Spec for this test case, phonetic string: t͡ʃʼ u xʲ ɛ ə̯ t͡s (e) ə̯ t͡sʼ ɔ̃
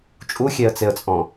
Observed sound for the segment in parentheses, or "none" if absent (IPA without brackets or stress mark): e